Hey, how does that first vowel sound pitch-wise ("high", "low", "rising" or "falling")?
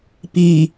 low